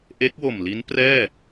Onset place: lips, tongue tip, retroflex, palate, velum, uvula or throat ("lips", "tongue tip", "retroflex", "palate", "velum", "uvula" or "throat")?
throat